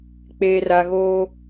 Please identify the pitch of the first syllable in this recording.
low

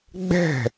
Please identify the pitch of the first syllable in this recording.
falling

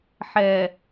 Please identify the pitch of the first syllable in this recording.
low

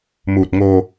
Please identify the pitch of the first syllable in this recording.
low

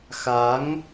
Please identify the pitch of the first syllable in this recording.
rising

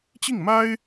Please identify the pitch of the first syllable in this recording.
falling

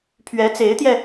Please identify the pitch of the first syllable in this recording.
rising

